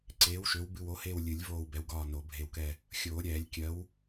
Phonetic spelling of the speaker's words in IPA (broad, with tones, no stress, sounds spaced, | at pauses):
ǀ eː˨˥ w ʃ ø˨˥ w b ɨ˦˨ w o˨˥ h eː˦˨ w lʲ ɨ˨˩˦ lʲ v oː˦˨ w b ɛ˨˥ w ɡ ɒː˦˨ n o˨˩˦ bʱ e˦˨ w k ɛ˦˨ | xʲ oː˨˩˦ ɾʲ ɛː˨˩˦ lʲ kʲ ɜ˨˥ w